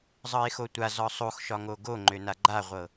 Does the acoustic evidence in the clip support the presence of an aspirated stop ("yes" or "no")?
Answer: no